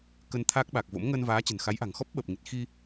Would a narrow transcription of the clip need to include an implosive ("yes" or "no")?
yes